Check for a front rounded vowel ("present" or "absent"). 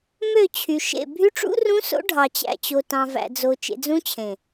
present